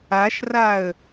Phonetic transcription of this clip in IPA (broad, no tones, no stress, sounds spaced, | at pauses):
a ʃ r a ə̯